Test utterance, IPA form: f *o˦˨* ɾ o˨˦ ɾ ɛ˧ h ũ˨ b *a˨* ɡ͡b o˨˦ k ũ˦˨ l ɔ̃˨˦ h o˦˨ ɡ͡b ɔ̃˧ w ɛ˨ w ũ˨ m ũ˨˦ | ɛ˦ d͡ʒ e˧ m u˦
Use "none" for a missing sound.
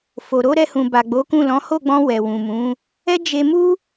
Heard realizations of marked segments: o˨, a˨

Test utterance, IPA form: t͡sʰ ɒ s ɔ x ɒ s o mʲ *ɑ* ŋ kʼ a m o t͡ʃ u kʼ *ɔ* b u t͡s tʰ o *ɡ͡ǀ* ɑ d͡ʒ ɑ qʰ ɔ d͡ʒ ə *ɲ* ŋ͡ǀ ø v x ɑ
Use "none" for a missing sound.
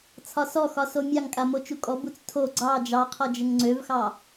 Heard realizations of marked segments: ɑ, ɔ, ɡ͡ǀ, ŋ

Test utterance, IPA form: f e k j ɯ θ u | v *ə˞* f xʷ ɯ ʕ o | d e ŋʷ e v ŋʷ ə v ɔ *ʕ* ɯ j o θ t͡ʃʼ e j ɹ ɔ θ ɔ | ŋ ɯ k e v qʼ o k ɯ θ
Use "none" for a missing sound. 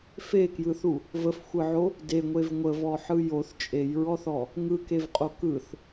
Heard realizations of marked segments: ə, ħ

